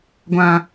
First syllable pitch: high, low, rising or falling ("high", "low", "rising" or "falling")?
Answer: low